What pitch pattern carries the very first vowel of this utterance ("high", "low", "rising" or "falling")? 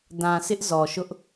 low